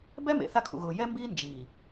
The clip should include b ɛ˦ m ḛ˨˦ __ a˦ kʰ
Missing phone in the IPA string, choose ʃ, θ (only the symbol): θ